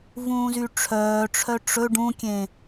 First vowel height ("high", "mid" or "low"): high